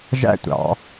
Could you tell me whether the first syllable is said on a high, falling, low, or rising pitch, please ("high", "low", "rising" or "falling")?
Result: high